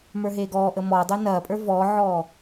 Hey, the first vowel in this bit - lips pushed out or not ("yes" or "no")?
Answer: no